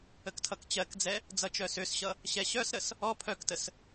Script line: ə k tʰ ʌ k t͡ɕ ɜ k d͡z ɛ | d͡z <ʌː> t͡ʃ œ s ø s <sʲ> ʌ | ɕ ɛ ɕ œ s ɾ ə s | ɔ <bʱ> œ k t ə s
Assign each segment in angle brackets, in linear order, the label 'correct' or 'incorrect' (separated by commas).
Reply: incorrect, incorrect, incorrect